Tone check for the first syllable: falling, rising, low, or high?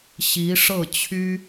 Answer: rising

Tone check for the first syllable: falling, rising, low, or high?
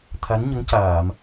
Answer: rising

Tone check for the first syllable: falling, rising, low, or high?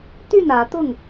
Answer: falling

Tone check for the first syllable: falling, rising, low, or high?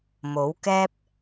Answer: rising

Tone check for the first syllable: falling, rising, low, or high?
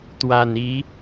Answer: low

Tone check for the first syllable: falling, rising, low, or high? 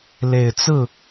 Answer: low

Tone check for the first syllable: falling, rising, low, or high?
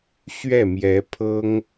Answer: falling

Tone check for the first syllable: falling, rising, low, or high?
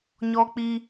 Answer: high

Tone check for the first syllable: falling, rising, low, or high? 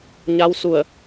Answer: rising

